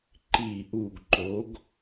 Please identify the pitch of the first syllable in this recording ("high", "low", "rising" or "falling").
low